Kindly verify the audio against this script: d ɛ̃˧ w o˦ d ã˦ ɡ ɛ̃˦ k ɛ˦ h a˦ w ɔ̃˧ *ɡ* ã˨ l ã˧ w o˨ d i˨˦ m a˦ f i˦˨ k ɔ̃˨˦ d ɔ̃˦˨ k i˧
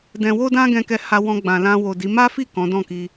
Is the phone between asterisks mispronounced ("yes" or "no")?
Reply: yes